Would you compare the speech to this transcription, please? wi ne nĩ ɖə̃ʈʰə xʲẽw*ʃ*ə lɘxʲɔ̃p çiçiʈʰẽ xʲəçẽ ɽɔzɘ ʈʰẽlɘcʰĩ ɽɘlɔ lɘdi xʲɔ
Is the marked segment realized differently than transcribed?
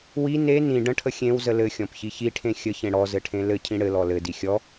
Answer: yes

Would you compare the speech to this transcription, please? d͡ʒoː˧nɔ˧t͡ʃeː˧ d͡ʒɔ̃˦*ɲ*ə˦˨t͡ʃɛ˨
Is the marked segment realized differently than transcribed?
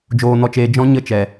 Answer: no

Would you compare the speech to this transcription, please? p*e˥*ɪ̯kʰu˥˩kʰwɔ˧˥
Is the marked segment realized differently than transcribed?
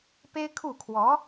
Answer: no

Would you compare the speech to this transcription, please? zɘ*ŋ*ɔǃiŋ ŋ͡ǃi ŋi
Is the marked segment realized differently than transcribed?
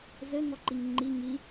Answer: no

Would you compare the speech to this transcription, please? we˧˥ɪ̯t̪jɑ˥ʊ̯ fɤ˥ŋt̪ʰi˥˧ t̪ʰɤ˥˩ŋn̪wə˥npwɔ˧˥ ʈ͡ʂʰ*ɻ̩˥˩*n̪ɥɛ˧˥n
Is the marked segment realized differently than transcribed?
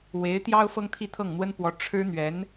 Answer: yes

